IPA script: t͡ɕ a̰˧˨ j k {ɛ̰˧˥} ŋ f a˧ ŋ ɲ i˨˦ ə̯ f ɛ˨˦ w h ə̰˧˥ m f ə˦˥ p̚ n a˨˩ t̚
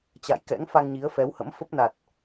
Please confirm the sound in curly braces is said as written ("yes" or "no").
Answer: yes